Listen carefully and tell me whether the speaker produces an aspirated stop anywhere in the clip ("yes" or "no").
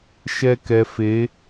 no